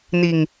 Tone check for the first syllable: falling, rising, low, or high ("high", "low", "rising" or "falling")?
low